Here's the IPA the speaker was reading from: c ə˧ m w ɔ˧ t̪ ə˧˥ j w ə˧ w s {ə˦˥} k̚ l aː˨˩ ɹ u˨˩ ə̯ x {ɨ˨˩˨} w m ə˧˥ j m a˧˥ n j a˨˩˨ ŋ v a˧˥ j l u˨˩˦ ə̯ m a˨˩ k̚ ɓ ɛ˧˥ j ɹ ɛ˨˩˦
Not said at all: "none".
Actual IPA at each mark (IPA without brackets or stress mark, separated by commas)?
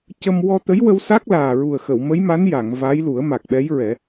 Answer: a˦˥, ə˨˩˨